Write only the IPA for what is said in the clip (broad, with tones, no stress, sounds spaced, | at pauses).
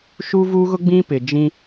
ʃ uː˦ v uː˦ ɣ ʊ˦ ɡ͡b ĩ˦ p ɪ˨ d͡ʒ ĩ˦